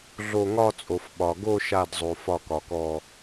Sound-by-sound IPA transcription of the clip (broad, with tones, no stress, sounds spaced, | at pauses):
ɮ o˧˩ ŋ ɒ˥˧ t͡sʼ o˩ f ɓ ɒ˩ ɡ o˥˧ ʃ a˧˩ d zˤ o˩ f ɒ˧˩ k ɒ˩ k ɔ˧˩